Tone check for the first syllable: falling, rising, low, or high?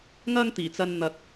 high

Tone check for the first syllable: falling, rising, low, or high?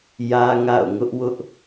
high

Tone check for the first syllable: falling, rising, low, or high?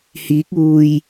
rising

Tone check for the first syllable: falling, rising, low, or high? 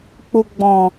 low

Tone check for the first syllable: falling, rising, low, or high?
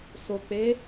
low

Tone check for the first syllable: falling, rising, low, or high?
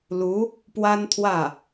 rising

